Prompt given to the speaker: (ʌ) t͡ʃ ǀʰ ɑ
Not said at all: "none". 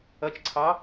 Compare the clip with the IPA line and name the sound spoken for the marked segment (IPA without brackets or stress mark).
ʌ